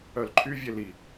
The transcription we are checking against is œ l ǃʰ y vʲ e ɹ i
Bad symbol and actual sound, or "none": ɹ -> l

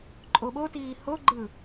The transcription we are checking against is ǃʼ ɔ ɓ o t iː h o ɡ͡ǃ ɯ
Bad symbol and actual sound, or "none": ɔ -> o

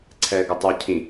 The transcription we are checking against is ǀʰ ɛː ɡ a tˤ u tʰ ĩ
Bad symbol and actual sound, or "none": tʰ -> cʰ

